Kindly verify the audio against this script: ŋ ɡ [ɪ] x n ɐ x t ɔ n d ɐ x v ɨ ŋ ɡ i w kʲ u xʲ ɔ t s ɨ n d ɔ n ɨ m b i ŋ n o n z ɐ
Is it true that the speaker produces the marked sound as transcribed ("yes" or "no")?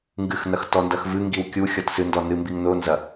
no